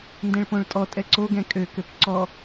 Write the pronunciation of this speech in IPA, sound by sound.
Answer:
n d ɛ̃ ɭ p õ ɭ tʼ ɔ tʼ ɛ ǀ o ɡ ɛ̃ kʼ ø k ø p ǀ ɔ

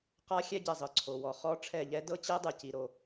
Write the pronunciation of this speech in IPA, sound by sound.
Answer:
q a˦˥ xʲ ɛ˦˥ ɟ ɛ˩ zˤ ɯ˩ ǀʰ o˩ w ɔ˩ χ ɔ˦˥ ʈ͡ʂʰ ɛ˧˩ ʎ ɛ˦˥ d ɤ˦˥ t͡ɕ ɛ˦˥ dˤ ɯ˩ c i˩ ɾ o˩

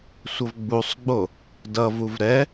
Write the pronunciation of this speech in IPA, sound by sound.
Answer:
sʷ ʌ v ɡ͡b u sˤ ɡ͡b o | d ʌ v u v ɾ ɛ

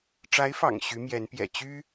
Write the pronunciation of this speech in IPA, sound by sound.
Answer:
ʈ͡ʂ a˧˥ ɪ̯ f ɑ̰˨˩ ŋ ɕ y˧˥ m j ɛ˧˥ n p j ɛ̰˨˩ t͡ɕ y˥

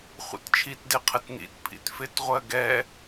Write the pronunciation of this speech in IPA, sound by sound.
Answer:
χʷ ḭ t t͡ʃʰ i t d ɪ qʰ ə t n ḭ t pʰ ḭ t f ɪ t ʁʷ ɜ ɡ ɛ

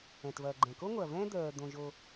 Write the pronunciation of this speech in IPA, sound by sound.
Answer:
ɛ̃˨ t v ɐː˨ ɡ͡ǃ ɛ̃˨ k o˦ ŋʷ ɐː˨ v ɛ̃ː˦ d̪ œː˨ d̪ õ˨ ʒ o˦

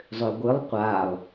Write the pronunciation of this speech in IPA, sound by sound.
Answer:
zˤ ø ɡʷ ɨ lˠ qʷ a lˠ

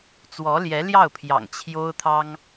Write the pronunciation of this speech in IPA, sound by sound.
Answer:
t͡s w ɔ˧˥ l j ɛ˧˥ l j ɑ˥˩ ʊ̯ pʰ j ɑ̰˨˩ ŋ t͡ɕʰ j o˥ ʊ̯ t̪ʰ ɑ˥ ŋ

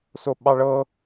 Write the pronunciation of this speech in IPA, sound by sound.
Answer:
s o ɓ ɑ ɭ ɤ

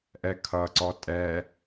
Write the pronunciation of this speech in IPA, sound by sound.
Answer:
ʔ ɛ kʰ ʌ ǀ ɔ tʼ ɛ

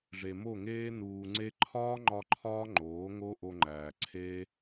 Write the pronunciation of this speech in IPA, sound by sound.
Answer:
ʐ e˨ m o˦˨ ŋ eː˦ n uː˨ ŋ͡ǀ e˧ ǃʰ ɒː˦ ŋ͡ǃ ɒ˧ ǃʰ ɒː˦ ŋ͡ǃ oː˨˦ ŋ o˦ ʔ o˧ ŋ͡ǃ æː˨ ǀʰ eː˦

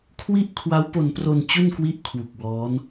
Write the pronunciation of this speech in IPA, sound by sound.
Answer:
kʰ w i˥˩ ʔ kʰ w a˦˥ w p o˧ n p r o˧ n t͡ɕ u˥˩ n k w i˦˥ ʔ kʰ w u˨˩ k̚ w ɔː˦˥ n

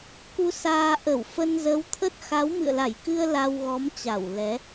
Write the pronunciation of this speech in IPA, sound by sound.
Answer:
k u˧ s aː˧ ʔ ə˧˩ w f ə˧ n z ə˨˦ w t̪ʰ ə˦˥ t̚ x a˨˦ w m ɨ̰˧˨ ə̯ l a˧˩ j k ɨ˧ ə̯ l a˧ w ɣ ɔ˨˦ m t͡ɕ a˧˩ w l ɛ˨˦

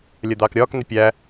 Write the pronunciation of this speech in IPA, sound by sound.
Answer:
lʲ ɜ d̪ ɑː k ɾʲ ɒː k n ɪ pʲ æ

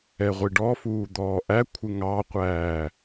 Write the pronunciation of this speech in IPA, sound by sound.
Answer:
ɛ ʁʷ i ɖ ɔ f uː d̪ ɔː ʔ æ kʷʰ ɪ ŋ ɑ qʷ æː

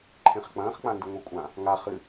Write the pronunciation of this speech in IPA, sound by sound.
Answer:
ǃʰ ẽ χ k͡p ɐ̃ː χ k͡p ã n d ɨ ŋʷ e kʷʼ ã | ŋ a χ ɨ

